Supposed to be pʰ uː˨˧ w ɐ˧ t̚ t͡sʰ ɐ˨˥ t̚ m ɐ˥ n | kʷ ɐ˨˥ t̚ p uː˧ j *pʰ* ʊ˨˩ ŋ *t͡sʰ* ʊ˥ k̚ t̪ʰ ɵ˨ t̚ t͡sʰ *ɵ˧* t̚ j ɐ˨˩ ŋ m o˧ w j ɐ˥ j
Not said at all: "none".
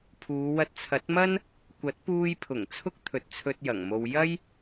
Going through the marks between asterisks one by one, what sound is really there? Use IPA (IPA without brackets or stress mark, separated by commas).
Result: pʰ, t͡sʰ, ɵ˧